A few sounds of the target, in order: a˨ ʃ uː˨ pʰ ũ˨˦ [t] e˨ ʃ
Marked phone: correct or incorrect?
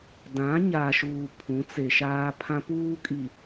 incorrect